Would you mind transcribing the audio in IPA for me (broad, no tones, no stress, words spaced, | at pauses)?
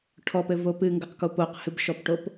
ʈʰɔpɘvo pɨŋɡɐqko poqhɨbʃɔpʈop